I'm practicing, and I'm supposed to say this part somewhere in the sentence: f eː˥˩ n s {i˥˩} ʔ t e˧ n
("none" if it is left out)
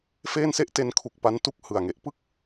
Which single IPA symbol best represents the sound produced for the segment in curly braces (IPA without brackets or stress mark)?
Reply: e˥˩